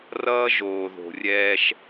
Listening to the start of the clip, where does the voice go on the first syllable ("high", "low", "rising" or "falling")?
high